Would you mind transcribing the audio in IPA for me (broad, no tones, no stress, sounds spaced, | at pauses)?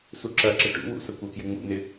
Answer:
s u ǁ ɐ ǁ ə ʈ ṵ w ṵ s ə kʷ ɐ k j ɪ ŋ͡m ṵ n ɪ